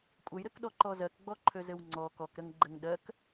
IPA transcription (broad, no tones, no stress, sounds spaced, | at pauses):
kʷʼ ə j ɾ ɘ k ɗ ɔ ǃ ɔ z ɜ k ɡ͡b ɔ ǃʰ ø z ɘ w ŋ͡ǀ ɔ k ɔ k ɾ ə ŋ ɡ͡ǃ ɘ ŋ ɗ ɜ k